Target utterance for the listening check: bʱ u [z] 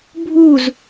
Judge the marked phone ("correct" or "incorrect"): correct